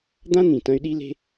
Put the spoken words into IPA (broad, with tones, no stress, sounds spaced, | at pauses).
d̪ ã˥ n̪ ĩ˩ t ɐ̃˧ y̯ ɗ i˧ l e̤˧